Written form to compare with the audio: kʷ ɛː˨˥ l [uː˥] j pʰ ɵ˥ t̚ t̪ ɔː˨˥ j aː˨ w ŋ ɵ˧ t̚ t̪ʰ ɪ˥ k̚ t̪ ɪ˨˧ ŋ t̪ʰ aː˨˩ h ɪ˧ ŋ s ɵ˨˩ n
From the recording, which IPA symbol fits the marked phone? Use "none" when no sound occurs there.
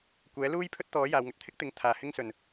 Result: uː˥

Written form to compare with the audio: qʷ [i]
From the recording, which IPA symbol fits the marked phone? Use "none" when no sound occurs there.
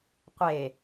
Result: e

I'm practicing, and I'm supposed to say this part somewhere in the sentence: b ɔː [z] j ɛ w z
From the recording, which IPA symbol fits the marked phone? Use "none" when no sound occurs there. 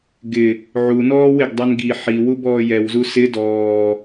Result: none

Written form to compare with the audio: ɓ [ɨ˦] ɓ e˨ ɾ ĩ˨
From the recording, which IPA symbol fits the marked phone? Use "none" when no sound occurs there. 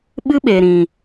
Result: ɨ˦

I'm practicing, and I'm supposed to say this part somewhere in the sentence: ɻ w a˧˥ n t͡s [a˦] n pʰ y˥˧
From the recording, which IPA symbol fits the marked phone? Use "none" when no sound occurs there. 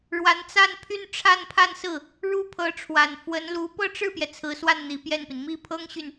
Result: a˥˧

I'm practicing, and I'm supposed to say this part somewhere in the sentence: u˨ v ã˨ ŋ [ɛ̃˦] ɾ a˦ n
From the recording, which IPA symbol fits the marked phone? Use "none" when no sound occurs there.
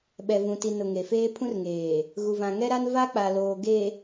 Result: ɛ˦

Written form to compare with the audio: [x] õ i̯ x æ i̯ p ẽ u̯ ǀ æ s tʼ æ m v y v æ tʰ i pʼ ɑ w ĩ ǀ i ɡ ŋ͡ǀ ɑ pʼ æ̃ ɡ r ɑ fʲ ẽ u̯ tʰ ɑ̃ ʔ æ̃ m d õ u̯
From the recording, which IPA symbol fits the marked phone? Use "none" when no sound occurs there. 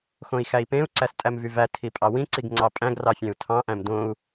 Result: x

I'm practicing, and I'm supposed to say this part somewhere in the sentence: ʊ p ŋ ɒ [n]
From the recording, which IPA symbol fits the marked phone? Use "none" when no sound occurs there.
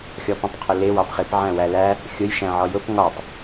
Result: tˤ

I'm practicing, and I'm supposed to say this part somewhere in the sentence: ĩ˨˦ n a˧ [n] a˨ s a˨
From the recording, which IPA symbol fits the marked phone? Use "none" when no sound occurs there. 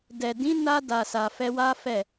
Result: d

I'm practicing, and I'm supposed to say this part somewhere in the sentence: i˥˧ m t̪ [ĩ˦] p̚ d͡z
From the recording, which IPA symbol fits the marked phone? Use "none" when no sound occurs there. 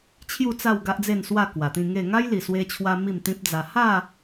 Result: ĩ˦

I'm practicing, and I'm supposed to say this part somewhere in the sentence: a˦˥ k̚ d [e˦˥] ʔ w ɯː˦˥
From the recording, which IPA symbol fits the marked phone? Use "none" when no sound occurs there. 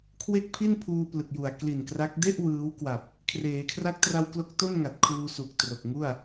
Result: e˥˩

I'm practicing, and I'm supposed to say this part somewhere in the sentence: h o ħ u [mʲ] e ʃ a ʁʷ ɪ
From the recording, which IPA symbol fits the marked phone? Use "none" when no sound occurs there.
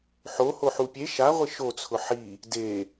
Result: pʲ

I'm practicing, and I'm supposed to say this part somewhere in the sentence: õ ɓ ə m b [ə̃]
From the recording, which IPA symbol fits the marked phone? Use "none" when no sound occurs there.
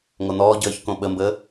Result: ə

